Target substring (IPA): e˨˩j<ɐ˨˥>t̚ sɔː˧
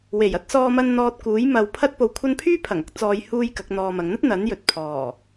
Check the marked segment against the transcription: correct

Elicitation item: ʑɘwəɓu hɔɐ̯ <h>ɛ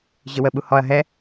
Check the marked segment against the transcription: incorrect: ɦ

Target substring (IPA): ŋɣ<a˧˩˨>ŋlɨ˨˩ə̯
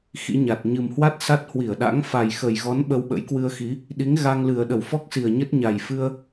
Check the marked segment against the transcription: incorrect: a˧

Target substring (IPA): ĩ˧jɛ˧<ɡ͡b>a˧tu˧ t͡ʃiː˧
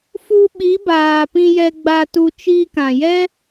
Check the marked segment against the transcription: correct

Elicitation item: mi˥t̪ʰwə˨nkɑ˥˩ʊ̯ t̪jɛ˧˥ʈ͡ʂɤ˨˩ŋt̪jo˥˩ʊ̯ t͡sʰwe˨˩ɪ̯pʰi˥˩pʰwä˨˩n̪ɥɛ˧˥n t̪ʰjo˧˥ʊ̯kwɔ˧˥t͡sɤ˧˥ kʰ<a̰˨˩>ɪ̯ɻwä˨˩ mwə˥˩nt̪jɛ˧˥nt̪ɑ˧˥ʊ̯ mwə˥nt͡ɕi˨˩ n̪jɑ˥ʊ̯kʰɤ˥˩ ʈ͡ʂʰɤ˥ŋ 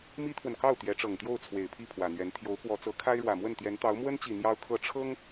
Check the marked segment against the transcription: incorrect: a˥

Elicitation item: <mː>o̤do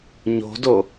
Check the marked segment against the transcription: incorrect: ɲ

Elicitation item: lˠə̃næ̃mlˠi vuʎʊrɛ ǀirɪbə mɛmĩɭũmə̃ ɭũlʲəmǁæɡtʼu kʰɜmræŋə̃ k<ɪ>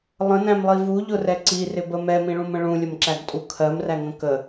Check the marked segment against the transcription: incorrect: ə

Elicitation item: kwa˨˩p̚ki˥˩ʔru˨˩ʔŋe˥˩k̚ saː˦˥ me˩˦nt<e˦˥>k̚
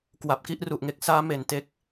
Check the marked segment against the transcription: correct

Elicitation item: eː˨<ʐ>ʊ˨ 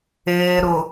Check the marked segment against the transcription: incorrect: ɾ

